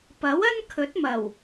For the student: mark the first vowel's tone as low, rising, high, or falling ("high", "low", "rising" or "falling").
rising